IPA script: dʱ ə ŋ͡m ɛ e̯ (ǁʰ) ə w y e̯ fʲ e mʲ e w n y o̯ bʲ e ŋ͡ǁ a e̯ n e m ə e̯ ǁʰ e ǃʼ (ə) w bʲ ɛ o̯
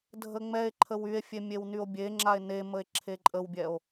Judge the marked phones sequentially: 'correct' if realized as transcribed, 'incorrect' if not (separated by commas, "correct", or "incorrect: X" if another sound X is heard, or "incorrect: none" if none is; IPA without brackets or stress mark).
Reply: incorrect: ǃʰ, correct